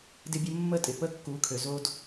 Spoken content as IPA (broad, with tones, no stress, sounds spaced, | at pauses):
d ɪ˦ bʲ ə˦ mː ə˦ tʼ ɪ˨ p ə˦ kː u˨˦ kʰ ø˨ z o˦ d